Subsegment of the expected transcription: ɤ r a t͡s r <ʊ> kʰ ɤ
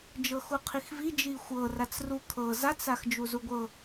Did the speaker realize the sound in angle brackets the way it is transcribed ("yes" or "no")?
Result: no